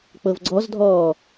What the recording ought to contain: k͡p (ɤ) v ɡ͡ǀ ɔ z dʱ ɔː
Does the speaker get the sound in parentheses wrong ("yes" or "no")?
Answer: no